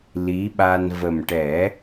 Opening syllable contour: rising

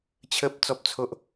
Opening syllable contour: high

